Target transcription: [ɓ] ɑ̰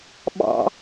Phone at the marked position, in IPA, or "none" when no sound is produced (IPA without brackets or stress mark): ɓ